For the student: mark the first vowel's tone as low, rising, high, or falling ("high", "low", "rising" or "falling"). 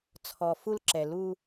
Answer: low